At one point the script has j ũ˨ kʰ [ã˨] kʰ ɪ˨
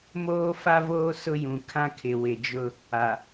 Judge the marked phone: incorrect: ã˦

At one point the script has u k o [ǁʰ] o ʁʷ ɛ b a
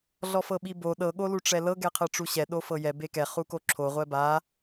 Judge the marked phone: correct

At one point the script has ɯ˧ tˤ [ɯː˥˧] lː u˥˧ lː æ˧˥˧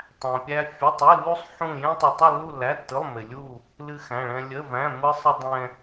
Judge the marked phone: incorrect: ɯ˥˧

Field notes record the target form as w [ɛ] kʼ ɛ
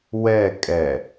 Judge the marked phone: correct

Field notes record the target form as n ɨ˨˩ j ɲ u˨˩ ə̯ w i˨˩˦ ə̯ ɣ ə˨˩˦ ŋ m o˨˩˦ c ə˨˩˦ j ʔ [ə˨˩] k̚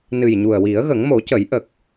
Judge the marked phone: correct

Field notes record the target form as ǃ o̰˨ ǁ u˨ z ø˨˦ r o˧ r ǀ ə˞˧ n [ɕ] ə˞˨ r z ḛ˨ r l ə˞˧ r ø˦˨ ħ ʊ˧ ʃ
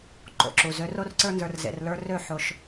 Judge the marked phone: incorrect: z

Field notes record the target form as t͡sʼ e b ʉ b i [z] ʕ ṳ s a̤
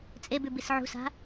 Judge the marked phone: incorrect: s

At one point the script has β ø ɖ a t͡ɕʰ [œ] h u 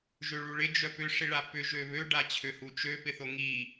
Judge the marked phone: incorrect: ø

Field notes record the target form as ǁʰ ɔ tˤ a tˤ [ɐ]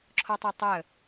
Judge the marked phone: incorrect: ə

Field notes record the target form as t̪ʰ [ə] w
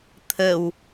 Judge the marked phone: correct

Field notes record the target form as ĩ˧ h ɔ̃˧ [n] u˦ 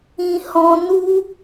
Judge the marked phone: correct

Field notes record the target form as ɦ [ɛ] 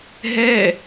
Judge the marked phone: correct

